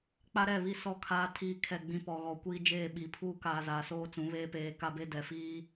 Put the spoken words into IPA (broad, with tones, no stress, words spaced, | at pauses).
k͡pa˦ɾɛ˦˨βi˦ sɔ˦˨kʰaː˦ tʰiː˦˨kʰɛ˦˨ɡ͡bĩ˦ pɔ˨ɣɔ˨kʷiː˦d͡ʒeː˦˨ ɓi˨pʰuː˦ka˨ zaː˨soː˦t͡sũ˨˦ βeː˦peː˨˦ka˦be˦ dɛ˨ fiː˦